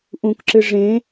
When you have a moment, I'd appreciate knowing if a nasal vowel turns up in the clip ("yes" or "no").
yes